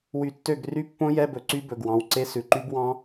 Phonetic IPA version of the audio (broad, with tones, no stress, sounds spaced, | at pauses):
w y˧˩ tː ø˥˨ ɡ r y˦˥ pː õ˦˥ j ɛ˧˥˧ b ɵ˨˦ ǀ y˦˥ b ɵ˩˧˩ ɡ w ɑ̃˩˧˩ w ǀ e˦˥ s ʉ˩˧˩ ǃ y˦˥ b w ɑ̃˦˥